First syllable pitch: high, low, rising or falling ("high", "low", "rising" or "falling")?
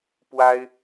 high